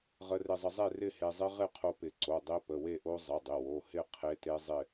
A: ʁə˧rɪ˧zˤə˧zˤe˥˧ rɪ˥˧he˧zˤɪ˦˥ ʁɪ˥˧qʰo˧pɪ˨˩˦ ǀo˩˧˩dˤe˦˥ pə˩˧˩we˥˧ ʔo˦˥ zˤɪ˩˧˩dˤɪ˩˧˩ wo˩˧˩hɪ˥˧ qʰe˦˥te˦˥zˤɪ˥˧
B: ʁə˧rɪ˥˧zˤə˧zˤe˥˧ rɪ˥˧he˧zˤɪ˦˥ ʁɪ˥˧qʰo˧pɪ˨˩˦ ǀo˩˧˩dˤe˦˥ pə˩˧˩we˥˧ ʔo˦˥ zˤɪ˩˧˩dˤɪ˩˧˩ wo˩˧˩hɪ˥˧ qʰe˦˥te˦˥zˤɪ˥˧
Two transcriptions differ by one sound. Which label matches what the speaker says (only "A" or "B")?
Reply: A